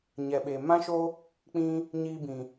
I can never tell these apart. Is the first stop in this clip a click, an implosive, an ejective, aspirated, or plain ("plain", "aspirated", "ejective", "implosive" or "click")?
implosive